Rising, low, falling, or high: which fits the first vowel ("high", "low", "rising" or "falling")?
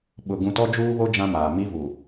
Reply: low